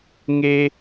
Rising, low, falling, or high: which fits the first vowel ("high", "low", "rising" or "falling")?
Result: high